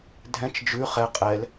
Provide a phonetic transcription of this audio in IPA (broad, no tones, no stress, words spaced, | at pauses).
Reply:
dʱɛ̃t͡ʃ d͡ʒʉ χɛ qʼɛl